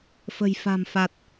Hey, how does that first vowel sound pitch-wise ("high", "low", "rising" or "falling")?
low